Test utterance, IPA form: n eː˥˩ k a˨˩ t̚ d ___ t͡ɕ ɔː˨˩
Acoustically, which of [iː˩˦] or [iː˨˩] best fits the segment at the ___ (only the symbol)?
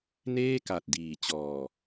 iː˨˩